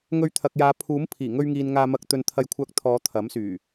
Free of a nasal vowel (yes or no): yes